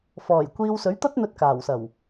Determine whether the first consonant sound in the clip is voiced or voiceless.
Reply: voiceless